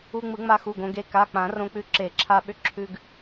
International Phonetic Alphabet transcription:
u˧ŋ͡mɯ˨˩˦ŋ͡ma˧xu˩˧˩ɡ õ˧ɡe˧ ka˩˧˩k͡pã˨˩˦ rõ˧k͡pʉ˧ ǁe˨˩˦ǁʰa˧ɓʏ˧ ǁʰʉ˧ɡ

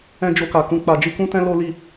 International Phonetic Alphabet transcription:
ɛ̃˧ d͡ʒo˧ka˨kũ˧ k͡pa˨ d͡ʒi˧kũ˦tɛ̃˦ lo˦li˦˨

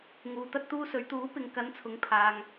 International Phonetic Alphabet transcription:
ŋuː˨t̪ɐ˧t̚t̪uː˧sɵ˨˧ɥ t̪uː˨˥ pɪ˧ŋ kɐ˨˧nt͡sʰʊ˨ŋpʰaː˨ŋ

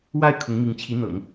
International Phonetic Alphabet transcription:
wa˥˩ɪ̯ kʰʊ˧˥ŋmi˧˥ŋt͡ɕʰi˧˥n̪ɤ̰˨˩˦ŋ

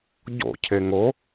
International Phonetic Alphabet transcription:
ɟo̰ cʰeŋo

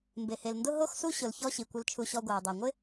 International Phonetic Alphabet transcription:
mbe˨he˨lndʊ˦ ɦo˦xsu˦ ɕʊ˧lçɔ˦ ɕi˨kʷɪ˧l t͡ʃʰu˧ɕɔ˧ ɡʷa˨u̯dˤe˨ŋʷɪ˦

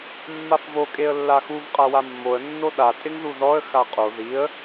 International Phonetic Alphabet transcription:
mːafvo kʼeə̯lːaxuv qʼawamːoə̯ nːoɗa tʼɪŋðuðɔə̯ xaqʼo ðiə̯

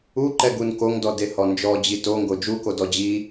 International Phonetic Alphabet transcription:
uǃɛɡun koŋdɔdehɔ nd͡ʒɔd͡ʑi toŋɡo d͡ʒukodɔ d͡ʑi

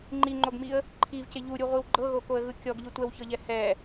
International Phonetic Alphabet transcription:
ŋ͡ǃiŋ͡ǃoɡmiə̯ | ǃʰivce ʎuɾʲuʁʷiw ɡ͡ǃɤɣokoə̯ɣɯ kʲɔɡʎɯ tʷɛwçɤʎɛ hɛ

